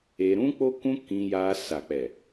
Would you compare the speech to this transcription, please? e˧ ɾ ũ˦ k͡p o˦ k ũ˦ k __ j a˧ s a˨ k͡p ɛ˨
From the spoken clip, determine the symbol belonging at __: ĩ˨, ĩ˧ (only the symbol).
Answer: ĩ˧